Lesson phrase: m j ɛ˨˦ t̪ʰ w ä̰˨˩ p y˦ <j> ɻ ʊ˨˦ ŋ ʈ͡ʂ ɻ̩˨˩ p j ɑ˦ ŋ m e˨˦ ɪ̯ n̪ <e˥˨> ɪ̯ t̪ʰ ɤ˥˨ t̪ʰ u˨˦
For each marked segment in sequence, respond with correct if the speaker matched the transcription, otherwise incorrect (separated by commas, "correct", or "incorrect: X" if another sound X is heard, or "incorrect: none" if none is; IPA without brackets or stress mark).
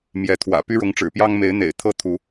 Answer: incorrect: none, incorrect: ḛ˨˩